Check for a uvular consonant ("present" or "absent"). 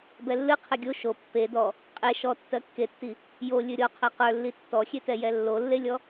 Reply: present